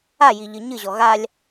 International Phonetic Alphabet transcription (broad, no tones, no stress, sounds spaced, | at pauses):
a j i ʎ ɨ ɲ ɨ ʑ ɔ ɣ a lʲ